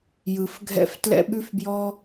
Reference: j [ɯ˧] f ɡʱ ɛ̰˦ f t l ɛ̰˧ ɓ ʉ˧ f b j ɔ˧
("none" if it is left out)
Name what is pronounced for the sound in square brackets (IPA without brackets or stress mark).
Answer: ɯ˧